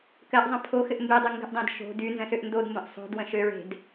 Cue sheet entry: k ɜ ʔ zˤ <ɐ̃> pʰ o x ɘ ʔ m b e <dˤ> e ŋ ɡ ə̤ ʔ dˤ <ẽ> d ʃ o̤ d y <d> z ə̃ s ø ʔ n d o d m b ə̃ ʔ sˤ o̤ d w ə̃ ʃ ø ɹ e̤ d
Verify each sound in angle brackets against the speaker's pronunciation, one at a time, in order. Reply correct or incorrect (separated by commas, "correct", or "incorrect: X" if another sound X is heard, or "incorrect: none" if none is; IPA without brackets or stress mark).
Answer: incorrect: ə̃, correct, correct, incorrect: n